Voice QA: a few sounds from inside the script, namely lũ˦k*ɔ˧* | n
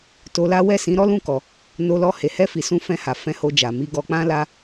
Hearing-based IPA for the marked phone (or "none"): ɔ˧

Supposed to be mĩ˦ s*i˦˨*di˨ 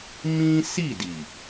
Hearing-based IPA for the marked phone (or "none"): i˦˨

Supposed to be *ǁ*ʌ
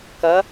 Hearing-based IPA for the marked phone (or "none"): k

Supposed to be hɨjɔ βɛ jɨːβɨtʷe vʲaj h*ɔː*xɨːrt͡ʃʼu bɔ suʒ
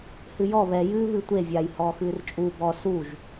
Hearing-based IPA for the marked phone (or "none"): ɔː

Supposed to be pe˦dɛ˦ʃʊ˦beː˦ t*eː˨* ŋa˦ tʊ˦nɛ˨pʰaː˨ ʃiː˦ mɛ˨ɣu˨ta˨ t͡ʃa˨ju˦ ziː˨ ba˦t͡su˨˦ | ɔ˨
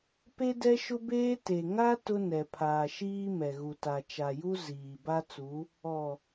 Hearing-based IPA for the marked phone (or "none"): e˨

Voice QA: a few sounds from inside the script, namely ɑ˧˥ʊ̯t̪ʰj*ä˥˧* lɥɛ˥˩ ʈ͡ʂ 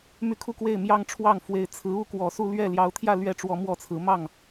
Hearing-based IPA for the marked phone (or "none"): ä˥˧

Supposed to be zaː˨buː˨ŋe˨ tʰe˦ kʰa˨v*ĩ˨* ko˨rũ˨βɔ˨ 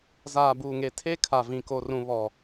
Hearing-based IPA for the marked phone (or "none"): ĩ˨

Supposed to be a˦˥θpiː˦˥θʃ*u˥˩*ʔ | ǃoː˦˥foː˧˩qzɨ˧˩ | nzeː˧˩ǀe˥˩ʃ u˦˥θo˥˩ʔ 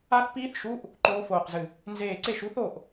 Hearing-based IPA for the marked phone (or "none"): u˧˥˧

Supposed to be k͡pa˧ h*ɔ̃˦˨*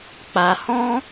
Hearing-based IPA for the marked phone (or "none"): ɔ̃˦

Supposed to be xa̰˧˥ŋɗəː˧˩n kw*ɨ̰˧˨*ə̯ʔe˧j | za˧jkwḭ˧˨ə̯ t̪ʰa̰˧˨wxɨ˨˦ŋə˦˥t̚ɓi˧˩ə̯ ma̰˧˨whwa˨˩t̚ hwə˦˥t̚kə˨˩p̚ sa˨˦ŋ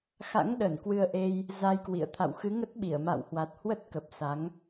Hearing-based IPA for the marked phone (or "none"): ɨ˧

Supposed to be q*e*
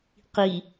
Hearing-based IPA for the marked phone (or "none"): i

